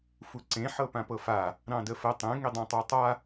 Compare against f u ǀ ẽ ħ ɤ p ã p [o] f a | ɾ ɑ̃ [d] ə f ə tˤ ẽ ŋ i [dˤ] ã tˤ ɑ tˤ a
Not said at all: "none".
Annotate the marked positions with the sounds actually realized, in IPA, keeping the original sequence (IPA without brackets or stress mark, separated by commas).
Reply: ɤ, d, dˤ